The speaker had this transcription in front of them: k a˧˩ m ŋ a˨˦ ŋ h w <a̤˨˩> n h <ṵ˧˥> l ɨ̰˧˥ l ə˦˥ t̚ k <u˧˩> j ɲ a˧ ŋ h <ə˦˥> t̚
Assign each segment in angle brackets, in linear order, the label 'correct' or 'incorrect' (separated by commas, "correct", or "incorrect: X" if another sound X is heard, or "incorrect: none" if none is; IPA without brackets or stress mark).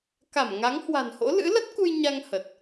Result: correct, incorrect: o̰˧˥, incorrect: u˧, incorrect: ə˨˩